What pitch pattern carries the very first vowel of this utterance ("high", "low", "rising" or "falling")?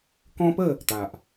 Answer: high